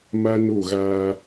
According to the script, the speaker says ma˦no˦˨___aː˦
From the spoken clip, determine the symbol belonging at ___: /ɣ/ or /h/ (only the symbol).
ɣ